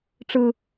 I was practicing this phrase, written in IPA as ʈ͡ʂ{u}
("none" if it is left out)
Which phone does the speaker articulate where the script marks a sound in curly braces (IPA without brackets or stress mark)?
ɯ